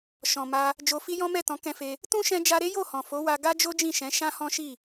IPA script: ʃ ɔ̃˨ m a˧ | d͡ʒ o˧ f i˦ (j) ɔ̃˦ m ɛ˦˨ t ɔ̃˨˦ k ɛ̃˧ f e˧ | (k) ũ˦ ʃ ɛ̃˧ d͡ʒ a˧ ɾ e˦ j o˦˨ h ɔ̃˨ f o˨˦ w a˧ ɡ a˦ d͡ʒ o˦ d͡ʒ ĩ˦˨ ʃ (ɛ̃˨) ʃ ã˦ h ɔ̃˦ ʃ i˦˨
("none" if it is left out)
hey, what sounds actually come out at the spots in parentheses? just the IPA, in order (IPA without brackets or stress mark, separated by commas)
j, t, ɛ̃˨˦